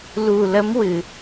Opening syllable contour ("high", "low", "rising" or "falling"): low